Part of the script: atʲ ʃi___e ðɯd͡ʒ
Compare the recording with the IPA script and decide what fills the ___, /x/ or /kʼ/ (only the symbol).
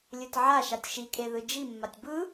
kʼ